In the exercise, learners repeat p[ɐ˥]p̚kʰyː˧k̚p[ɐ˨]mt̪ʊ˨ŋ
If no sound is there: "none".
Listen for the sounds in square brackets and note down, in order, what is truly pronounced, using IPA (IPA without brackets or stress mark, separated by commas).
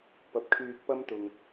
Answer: ɐ˨, ɐ˥